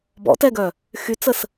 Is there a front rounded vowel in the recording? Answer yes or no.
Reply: yes